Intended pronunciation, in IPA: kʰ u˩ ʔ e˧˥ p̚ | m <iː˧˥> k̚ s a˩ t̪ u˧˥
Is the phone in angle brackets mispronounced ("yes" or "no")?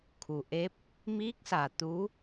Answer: no